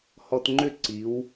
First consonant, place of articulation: glottal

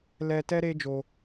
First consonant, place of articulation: alveolar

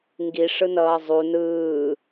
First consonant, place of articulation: velar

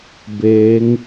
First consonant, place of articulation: labial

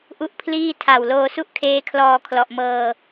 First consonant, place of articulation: glottal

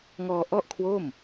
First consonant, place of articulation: velar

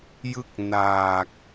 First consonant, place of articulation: palatal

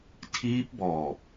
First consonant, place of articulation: alveolar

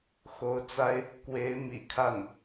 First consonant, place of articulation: velar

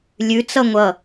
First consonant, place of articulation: alveolar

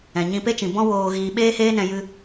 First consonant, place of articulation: palatal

